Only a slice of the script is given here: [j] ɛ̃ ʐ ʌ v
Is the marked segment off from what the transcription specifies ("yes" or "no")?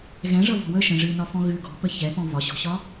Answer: yes